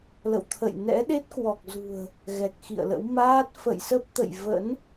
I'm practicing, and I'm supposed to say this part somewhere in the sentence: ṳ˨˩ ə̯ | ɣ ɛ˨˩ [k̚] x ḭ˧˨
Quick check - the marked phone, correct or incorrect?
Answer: correct